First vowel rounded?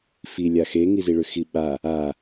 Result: no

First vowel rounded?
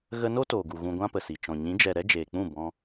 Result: no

